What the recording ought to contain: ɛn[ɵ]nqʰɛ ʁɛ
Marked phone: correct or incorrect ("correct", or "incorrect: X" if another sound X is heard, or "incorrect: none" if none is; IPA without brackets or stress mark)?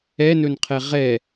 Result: correct